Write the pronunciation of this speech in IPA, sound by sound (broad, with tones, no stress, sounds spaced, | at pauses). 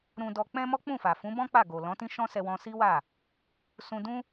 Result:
ɾ ũ˧ d ɔ˧ k͡p ɛ̃˦ m ɔ˦ k͡p ũ˦˨ f a˨ f ũ˨˦ b ɔ̃˦ k͡p a˦˨ ɡ o˨ l ɔ̃˨˦ t ĩ˦ ʃ ɔ̃˦ s ɛ˧ w ɔ̃˧ s i˦ w a˦˨ | s ũ˧ d ũ˦